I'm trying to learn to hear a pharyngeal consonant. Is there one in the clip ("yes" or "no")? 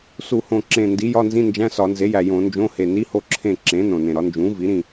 no